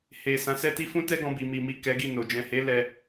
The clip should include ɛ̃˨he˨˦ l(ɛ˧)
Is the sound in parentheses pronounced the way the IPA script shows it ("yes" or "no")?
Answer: yes